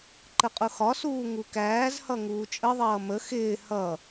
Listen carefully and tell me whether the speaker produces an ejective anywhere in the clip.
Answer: yes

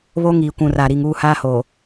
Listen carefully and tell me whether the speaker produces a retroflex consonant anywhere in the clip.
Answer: no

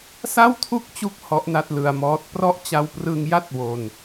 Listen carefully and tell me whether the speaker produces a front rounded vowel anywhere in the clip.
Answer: no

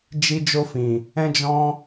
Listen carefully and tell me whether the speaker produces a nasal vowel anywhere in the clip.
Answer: yes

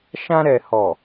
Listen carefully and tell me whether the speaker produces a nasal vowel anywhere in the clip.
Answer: yes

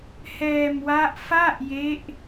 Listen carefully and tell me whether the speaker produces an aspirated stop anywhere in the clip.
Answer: no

